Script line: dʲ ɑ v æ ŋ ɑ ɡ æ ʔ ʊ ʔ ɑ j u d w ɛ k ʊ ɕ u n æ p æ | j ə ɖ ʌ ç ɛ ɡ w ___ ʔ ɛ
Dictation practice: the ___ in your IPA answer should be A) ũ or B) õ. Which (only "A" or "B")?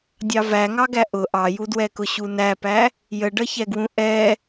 A